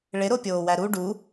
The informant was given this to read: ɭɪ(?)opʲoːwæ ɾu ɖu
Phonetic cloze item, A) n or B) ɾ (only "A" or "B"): B